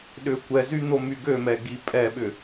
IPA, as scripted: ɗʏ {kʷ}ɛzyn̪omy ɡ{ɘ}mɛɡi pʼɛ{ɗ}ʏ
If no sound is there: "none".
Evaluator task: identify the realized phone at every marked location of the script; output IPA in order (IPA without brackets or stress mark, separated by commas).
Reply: kʷ, ø, ɓ